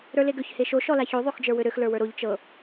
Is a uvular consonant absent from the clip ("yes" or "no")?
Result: yes